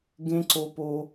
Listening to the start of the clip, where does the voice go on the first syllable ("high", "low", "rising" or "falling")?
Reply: high